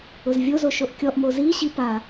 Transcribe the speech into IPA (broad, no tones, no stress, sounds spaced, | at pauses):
ʊ z vʲ o z o ʃ o ʔ kʲ ɔ ʔ m o z i ɕ i p a